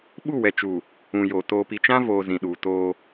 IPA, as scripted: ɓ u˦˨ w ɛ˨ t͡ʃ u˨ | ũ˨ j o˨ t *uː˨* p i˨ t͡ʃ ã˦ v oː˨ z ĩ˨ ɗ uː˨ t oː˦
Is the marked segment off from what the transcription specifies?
yes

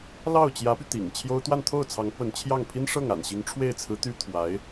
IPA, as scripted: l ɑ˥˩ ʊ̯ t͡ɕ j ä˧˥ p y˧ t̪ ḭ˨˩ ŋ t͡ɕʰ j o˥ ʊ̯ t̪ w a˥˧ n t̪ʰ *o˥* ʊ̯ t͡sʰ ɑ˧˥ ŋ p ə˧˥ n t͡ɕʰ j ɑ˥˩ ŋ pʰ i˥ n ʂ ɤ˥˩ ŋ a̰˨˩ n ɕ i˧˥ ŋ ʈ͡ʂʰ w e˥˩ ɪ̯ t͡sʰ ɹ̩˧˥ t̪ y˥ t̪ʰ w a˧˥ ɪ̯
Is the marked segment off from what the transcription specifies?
yes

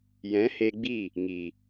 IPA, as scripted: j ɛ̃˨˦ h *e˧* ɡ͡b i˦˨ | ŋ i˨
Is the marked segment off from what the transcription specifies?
no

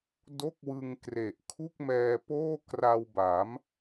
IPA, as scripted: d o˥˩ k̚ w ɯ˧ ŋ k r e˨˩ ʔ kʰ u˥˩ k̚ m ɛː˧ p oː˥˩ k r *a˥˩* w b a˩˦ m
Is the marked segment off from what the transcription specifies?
yes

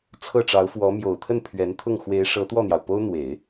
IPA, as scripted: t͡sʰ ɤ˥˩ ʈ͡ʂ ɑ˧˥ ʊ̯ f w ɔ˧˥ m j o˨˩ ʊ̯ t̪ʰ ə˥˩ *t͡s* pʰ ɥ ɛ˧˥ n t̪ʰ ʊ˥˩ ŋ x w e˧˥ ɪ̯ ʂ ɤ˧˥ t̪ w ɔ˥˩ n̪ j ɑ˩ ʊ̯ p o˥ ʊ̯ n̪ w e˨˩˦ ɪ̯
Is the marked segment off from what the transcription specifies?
yes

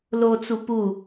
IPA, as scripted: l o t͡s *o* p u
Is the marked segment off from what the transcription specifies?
yes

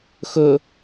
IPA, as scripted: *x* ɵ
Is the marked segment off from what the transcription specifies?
no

